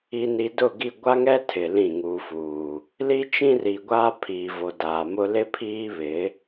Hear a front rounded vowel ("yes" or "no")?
no